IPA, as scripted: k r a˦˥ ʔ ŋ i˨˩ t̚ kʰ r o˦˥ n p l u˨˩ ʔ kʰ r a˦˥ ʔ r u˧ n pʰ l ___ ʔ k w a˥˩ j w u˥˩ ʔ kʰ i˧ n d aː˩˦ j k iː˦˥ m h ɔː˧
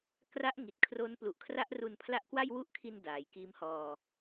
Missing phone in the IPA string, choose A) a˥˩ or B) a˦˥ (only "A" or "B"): B